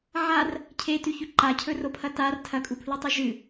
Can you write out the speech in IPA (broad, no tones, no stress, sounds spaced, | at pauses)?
ʕ a r | cʰ e t ʉ ç ʉ ǃ a cʰ ɵ r o pʰ ɐ t a r tʰ ɐ kʼ u pʰ l ʉ tˤ ɨ ʒ ɨ